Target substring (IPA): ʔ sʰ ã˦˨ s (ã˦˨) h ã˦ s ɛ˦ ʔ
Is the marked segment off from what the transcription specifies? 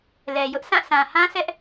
yes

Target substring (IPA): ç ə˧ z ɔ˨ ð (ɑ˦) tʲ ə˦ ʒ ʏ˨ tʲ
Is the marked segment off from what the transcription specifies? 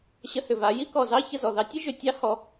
no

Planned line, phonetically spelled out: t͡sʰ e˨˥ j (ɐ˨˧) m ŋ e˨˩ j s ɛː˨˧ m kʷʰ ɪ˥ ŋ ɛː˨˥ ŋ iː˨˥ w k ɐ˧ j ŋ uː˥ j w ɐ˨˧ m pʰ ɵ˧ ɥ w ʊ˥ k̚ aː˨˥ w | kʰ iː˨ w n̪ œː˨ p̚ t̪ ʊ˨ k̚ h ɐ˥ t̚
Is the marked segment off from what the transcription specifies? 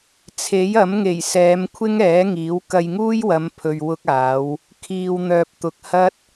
yes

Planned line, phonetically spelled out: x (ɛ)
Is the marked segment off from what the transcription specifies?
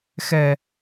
no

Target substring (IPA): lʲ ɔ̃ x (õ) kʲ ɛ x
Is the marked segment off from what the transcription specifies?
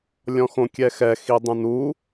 no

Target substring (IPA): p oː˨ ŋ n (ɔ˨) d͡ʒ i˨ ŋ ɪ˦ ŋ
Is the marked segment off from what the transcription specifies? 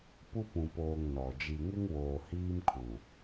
no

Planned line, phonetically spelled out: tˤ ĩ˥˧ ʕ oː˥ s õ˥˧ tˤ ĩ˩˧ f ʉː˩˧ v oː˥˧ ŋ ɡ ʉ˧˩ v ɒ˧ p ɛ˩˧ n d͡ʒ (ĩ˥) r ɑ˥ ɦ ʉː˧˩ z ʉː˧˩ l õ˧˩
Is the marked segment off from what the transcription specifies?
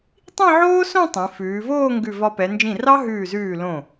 yes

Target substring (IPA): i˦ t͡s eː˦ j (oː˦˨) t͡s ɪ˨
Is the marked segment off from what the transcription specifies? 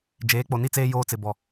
yes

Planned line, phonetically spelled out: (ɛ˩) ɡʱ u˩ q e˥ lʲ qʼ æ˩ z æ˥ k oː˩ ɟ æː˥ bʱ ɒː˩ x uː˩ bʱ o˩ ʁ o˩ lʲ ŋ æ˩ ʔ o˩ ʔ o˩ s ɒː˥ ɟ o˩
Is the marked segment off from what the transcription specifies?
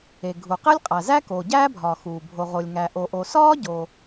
yes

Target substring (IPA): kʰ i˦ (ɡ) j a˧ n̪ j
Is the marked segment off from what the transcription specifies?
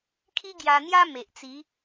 no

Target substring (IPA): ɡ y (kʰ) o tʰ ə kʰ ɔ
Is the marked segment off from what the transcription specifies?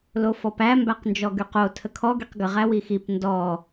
yes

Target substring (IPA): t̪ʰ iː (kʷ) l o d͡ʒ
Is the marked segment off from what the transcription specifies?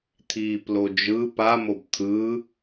yes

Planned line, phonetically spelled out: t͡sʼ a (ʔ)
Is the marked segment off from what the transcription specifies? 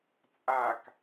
yes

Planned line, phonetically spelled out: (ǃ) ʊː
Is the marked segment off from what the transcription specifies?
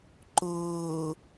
no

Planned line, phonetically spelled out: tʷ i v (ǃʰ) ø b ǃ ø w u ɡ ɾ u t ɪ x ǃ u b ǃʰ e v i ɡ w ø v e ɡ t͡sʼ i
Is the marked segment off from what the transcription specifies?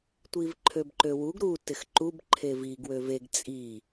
no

